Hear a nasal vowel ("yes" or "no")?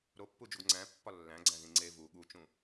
yes